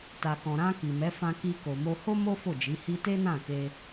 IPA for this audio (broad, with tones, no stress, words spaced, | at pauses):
ta˨kɔ̃˨ ɾã˧ ki˨mɛ˨˦ fã˧ki˧ ko˨mo˧ho˦ mo˦ fo˦˨d͡ʒi˨˦hi˦ te˦nã˦˨ke˧